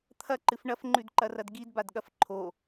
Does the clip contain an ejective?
no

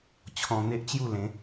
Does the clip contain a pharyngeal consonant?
no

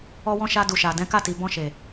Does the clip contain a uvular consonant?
no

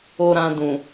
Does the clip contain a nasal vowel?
yes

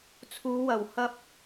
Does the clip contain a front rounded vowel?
no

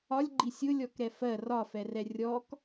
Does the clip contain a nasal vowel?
no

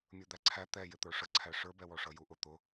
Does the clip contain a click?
yes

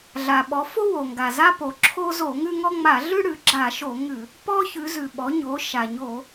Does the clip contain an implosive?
yes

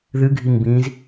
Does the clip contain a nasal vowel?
yes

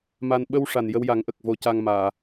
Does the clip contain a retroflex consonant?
yes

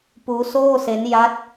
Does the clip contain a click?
no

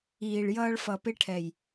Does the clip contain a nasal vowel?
no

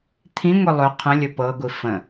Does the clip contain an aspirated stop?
yes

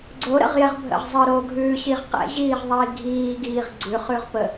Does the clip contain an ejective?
no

